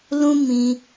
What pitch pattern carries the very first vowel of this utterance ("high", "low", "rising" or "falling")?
high